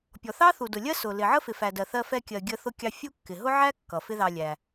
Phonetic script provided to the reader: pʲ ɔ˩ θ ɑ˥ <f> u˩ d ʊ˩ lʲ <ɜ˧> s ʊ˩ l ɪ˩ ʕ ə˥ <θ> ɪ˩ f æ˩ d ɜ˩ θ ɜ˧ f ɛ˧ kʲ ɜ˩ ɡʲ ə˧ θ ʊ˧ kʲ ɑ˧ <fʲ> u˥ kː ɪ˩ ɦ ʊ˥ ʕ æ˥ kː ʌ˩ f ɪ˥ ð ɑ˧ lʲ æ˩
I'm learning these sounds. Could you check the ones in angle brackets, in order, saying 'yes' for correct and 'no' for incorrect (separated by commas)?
no, no, no, yes